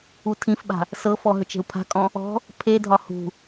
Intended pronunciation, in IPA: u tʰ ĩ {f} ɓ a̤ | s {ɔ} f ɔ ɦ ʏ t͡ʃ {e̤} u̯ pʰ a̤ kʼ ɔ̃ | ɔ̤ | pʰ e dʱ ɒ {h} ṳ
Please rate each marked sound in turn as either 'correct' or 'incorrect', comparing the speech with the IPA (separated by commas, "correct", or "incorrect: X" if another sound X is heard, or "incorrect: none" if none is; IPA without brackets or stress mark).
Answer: correct, incorrect: ɤ, correct, correct